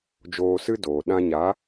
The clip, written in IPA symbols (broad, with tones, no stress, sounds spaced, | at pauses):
d͡ʒ oː˧ s ɨ˦ d oː˨ ɗ ã˧ ɲ a˨˦